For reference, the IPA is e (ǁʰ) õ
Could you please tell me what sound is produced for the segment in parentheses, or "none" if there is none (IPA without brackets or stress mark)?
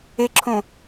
ǁʰ